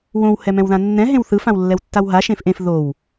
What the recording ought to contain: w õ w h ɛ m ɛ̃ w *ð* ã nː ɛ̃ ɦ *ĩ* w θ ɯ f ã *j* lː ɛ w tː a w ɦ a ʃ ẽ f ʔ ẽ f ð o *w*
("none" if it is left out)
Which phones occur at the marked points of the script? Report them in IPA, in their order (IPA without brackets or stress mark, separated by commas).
ð, ẽ, w, w